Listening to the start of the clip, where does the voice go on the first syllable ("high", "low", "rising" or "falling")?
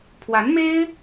rising